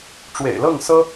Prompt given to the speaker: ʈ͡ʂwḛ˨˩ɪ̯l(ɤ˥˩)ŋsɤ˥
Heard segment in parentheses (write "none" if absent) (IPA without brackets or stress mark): ɤ˥˩